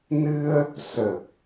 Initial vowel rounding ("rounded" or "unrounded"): unrounded